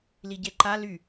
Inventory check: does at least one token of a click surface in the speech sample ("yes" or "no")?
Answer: yes